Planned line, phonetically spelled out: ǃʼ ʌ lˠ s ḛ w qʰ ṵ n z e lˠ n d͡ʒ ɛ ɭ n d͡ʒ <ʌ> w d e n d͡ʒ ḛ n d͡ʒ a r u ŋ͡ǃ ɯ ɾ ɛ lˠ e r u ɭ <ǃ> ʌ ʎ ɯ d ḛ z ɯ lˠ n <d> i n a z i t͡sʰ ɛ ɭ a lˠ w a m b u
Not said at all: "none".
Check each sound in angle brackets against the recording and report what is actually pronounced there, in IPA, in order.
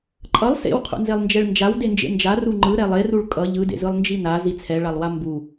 a, kʼ, d͡ʒ

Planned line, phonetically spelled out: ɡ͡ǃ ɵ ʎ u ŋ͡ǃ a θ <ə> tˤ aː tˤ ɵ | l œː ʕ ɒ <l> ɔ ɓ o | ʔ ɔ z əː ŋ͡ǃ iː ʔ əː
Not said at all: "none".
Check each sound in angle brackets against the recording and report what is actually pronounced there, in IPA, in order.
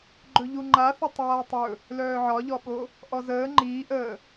ə, ʎ

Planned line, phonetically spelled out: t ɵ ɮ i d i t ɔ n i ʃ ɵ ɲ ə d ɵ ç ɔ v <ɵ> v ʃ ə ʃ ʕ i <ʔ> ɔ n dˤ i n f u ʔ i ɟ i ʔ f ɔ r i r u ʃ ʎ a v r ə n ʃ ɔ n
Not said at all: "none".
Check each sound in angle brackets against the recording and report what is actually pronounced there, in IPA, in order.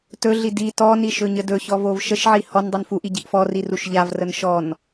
o, h

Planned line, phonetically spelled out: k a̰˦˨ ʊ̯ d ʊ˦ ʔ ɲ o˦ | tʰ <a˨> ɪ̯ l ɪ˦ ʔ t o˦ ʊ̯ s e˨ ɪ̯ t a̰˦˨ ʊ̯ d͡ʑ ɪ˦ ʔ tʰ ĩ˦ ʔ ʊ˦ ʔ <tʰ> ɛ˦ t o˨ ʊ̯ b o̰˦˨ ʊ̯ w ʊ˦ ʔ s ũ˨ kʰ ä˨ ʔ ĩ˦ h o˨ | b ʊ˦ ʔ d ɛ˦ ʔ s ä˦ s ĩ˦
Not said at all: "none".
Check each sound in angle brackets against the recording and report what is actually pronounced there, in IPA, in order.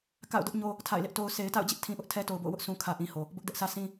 a̰˦˨, tʰ

